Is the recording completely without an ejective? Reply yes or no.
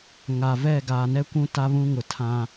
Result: yes